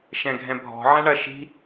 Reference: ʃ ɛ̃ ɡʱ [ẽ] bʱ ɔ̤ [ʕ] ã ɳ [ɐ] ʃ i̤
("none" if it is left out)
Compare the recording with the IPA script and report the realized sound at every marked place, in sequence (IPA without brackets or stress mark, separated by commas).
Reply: ɛ̃, ʕ, ɐ